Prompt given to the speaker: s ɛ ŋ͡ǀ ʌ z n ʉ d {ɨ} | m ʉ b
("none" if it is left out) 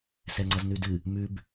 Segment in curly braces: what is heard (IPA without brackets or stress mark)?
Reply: ɨ